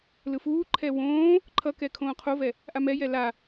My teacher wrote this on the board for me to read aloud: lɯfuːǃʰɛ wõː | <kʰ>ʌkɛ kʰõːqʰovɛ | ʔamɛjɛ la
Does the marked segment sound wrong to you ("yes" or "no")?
yes